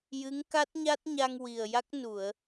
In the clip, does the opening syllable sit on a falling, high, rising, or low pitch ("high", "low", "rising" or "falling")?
rising